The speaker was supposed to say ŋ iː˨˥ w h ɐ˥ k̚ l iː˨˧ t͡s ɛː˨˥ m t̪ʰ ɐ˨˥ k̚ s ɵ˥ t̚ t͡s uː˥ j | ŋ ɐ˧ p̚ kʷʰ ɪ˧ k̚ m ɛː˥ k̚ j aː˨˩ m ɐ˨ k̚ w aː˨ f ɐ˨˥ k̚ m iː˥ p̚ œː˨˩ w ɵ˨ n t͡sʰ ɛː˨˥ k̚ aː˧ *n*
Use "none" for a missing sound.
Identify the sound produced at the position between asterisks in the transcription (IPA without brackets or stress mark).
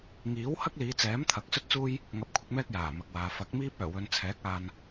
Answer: n